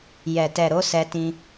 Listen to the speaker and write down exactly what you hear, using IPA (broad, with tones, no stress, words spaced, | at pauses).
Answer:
jɛ˨ tɛ˨ɾo˧ sɛ˧tĩ˧